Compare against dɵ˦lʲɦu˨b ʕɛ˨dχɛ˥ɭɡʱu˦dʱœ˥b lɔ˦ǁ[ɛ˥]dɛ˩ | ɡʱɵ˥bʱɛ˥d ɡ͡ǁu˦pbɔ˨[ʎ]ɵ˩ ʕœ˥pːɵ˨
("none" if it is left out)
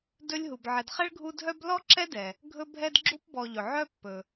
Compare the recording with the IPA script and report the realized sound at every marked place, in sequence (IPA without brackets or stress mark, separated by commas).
ɛ˦, ʎ